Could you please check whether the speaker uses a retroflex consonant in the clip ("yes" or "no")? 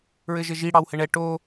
yes